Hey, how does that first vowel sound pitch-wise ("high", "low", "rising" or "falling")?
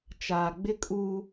low